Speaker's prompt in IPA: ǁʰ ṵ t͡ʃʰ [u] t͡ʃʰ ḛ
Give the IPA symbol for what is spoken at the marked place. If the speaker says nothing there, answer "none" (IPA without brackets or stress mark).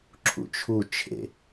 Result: u